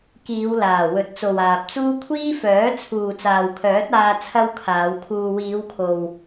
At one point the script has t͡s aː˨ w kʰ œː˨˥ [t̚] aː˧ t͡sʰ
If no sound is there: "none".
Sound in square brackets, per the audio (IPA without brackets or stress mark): t̚